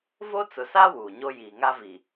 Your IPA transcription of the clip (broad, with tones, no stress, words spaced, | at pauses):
vo˦t͡sʊ˨sa˦ wuː˨ɲo˦ jiː˨ŋa˦vi˨